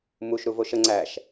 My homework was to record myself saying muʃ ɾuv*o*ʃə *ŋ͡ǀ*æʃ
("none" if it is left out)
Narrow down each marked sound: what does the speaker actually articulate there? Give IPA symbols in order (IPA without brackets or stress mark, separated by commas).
o, ŋ͡ǀ